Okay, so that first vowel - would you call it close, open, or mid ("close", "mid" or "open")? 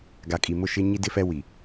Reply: open